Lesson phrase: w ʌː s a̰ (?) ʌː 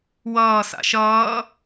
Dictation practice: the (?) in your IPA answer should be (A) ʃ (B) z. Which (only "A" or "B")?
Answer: A